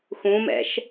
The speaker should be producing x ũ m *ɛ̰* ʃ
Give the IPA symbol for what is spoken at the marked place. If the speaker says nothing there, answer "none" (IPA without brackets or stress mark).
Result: ɛ̰